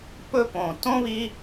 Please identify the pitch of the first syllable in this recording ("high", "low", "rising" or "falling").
high